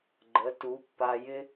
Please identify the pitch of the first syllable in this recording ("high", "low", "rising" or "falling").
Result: rising